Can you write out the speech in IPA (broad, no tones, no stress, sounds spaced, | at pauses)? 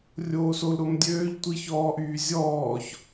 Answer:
rʲ oː s o l ɾ o m dʲ øː ʎ tʷ i ç ɔː ʔ yː zʲ ɔː ç